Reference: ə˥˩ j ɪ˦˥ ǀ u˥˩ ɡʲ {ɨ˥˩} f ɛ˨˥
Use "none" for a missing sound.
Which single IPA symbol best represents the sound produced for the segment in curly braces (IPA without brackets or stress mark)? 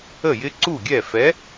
ɛ˥˩